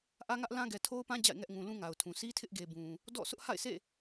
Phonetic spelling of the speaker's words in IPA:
ʔä˦ŋä˦ʔlã˦ ɡɛ˨tʰo˦ʊ̯pã˦ d͡ʑa̰˦˨ɪ̯ŋɛ˦ʔ ŋũ˨ lũ˦ŋa˨ʊ̯tʰũ˨ si˦tʰɪ˦ʔɡe˨ bũ˨ | dɔ̰˦˨ sʊ˦ʔha̰˦˨ɪ̯sḛ˦˨

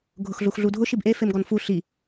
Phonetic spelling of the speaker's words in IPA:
ɡʱʊxɮuxɮudʱʊ ʃibʔe femɡɔnfu ɬi

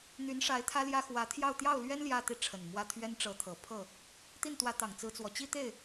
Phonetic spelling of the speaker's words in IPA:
n̪y˧˥nʂa˧˥ɪ̯ t̪ʰä˥ljä˥ xwä˧˥t̪ʰjɑ˥˧ʊ̯ t̪jɑ˥˩ʊ̯lɥɛ˥n ljä˥˧t̪i˥˩ʈ͡ʂʰə˨˩nmwä˥˩ t̪ʰɥɛ˥nʈ͡ʂɤ˧˥t̪ʰɤ˨˩ pʰɤ˥˩ | t̪i˥˩nt̪wä˧˥ t̪ɑ˨˩ŋt͡sɹ̩˧˥t͡swɔ˨˩t͡ɕi˥ t̪e˥˩ɪ̯

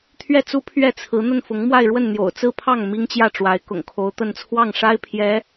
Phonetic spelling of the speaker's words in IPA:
t̪ʰɥɛ˥˩t͡su˥ pʰɥɛ˥˩t͡sʰɹ̩˧˥ n̪ə˥˩nfʊ˧˥ŋmwa˥˧ɪ̯ɻwə˥˩n n̪jo̰˨˩ʊ̯t͡sɹ̩˥˧pʰɑ˥˩ŋ mi˥ŋt͡ɕjä˥˩ʈ͡ʂwa˧˥ɪ̯ kʊ̰˨˩ŋkʰo˧˥ʊ̯t̪ə˥˧n t͡sʰwɑ˥˩ŋʂa˥ɪ̯pʰjɛ˧˥

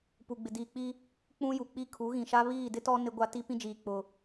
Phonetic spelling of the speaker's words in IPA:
pu˨ɡ͡bɪ˨diː˨k͡pi˦ | k͡pũ˦ju˨k͡pi˦ kʰu˨˦ɣĩ˨ʃa˦ βiː˦˨dɪ˦tɔ˦ nɪ˦ɡʷa˦ ti˦pĩ˦d͡ʒiː˨ k͡pʊ˨

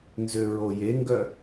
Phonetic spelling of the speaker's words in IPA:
nzøɹojeŋɡœ

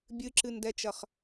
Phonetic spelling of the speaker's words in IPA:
bʲɨǁɨndɛt͡ʃɐχ

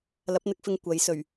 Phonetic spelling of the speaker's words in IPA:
lɐ˨˥p̚n̪ɪ˨˥k̚fɪ˧ŋ kʷɐ˨˥jsɵ˨˩ɥ

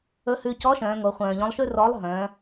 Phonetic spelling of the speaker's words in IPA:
ɵ˧˥hʉ˧ cɔ˧˥ ʃœ̃ː˩˧ŋo˩˧χʷœ̃ː˩ʎɔ̃˧˥lˠ ʃʉ˥rɔ˧˥lˠɦœ̃ː˩˧

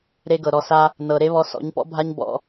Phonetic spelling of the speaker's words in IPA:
ɾe˦ɡɤ˨ ɾɔ˨sa˧ | nɤ˨ɾe˦βɔ˧ sɔ̰˨˦ɲpɔ̰˦bʱa˦ɲ bɔ̰˧

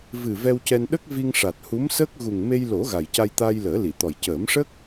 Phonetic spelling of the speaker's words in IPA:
vɨ˨˩ vɛ˧wcɛ˧n ɗə˦˥k̚vi˧ŋʂa˨˩t̚ hu˧˥msəː˦˥k̚ ɣu˨˩ŋme˧jlo˨˩˦ ɣa˨˩jca˧jt̪aː˧j ləː˨˩˦li˨˩˨t̪ɔ˨˩j cəː˨˩˦mʂə˦˥k̚

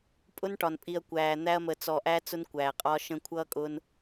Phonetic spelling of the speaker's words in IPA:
pʼʊ˦nʈɒ˨npʼi˨ɐ̯ kʷæː˨n̪æ˦ɐ̯ mə˨t͡sɔ˨ʔæ˦ t͡sʊ˦nkʷæː˨qʼɒ˦ʃə̃˦ kʷʰʌː˦ kʼʊː˦n

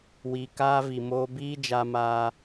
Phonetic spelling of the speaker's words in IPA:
wi˨kaː˧ vi˨moː˧biː˦ d͡ʒa˧maː˧

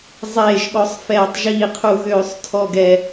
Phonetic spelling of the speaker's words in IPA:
zˤeː˧˩ʒ ɠɔ˧˩˧sˤfɛː˧˩˧tˤʒiː˧˩ qʰu˧˩ɣøː˧˩˧sˤ tʰɔ˧˩ ɡɛ˧˩

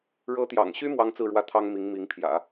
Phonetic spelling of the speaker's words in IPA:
ɻɤ˧˥t̪jɑ̰˨˩ŋɕy˥ mwɑ˥ŋt͡sɹ̩˥˧ɻwä˥˩t̪ʰɑ˥ŋ mi˧˥ŋmi˧˥ŋpʰjä̰˨˩˦

